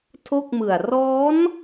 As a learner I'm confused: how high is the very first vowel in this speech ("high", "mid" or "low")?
mid